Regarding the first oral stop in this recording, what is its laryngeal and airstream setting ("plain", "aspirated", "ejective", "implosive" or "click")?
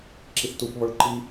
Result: click